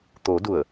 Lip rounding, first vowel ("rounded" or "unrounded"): rounded